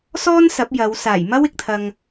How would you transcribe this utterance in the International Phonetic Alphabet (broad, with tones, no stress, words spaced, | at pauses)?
sɔː˥n sɐ˨˥p̚jɐ˨˧w saː˨˩jmɐ˥wɪ˨k̚t̪ʰɐ˨ŋ